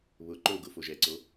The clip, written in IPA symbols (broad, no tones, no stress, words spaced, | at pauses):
βʊ ǃoɡʊ foʒɛǀo